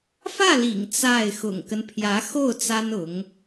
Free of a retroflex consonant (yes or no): yes